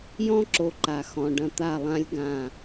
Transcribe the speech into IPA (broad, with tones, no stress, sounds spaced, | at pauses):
j ɔ̃˦ ǁ o˨ ǃ a˨ x ɔ̃˨ ɖ ɐ̃˦˨ t̪ a˦˨ lˠ ã˦ lʲ ɡ ã˦˨